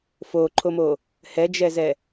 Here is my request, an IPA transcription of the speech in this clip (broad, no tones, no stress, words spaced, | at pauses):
foǃʰomo | hɛd͡ʒɛzɛ